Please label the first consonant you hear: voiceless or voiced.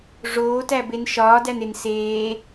voiced